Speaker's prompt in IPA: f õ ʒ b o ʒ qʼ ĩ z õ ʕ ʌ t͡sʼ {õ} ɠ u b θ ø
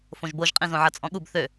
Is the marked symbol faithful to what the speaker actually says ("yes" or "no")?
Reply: no